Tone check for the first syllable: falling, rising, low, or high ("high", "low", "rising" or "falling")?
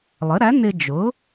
rising